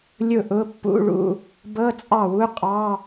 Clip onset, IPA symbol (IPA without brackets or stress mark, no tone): lʲ